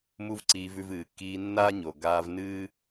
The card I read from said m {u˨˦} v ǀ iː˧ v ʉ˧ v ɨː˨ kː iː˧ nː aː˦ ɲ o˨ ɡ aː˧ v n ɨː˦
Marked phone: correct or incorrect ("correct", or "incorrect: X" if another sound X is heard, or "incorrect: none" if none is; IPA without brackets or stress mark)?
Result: incorrect: u˦